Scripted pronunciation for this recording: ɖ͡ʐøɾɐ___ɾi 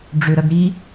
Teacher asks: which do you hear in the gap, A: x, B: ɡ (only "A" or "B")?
B